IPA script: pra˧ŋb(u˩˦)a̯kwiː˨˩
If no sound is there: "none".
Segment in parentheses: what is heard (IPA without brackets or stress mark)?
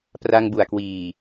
u˨˩